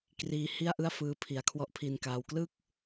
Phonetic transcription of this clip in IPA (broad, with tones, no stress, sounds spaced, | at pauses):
k r iː˧ h i˥˩ a̯ ʔ ɯ˥˩ a̯ f ɯː˧ pʰ i˩˦ a̯ kʰ w ɔ˦˥ ʔ pʰ i˧ n k aː˧ w k l ɯ˥˩ k̚